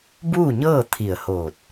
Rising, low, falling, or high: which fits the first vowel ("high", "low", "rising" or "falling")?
falling